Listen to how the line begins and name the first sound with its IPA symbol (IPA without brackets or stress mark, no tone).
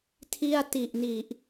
tʰ